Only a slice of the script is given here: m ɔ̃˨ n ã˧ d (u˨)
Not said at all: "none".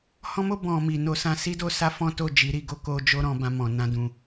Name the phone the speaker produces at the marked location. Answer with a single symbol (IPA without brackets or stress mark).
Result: ũ˨